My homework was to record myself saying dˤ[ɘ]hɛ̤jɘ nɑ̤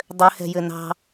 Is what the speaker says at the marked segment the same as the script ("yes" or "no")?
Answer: yes